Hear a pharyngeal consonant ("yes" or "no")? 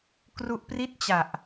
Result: no